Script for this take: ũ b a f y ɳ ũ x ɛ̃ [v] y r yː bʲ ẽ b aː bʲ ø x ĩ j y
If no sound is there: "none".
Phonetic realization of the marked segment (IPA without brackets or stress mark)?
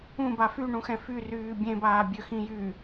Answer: f